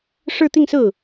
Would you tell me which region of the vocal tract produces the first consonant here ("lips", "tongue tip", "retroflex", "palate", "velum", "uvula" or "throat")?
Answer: retroflex